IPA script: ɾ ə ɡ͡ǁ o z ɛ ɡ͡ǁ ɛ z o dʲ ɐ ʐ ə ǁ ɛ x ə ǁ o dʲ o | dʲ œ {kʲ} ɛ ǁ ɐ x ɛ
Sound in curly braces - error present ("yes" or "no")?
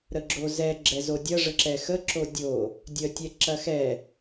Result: yes